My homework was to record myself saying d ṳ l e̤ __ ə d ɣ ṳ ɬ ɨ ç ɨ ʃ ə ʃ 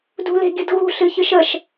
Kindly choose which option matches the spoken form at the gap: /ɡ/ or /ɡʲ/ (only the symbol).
ɡʲ